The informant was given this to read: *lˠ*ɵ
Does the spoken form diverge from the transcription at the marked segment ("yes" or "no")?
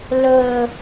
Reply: yes